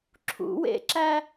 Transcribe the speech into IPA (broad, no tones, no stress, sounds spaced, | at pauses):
ǁʰ ṵ w ḛ ǁ æ